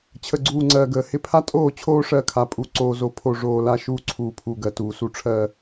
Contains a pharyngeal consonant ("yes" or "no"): no